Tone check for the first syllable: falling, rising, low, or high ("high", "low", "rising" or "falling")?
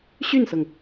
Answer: falling